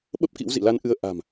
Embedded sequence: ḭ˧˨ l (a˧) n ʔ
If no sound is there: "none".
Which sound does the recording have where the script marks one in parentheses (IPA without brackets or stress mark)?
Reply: a˧